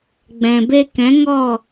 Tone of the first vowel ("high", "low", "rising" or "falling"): low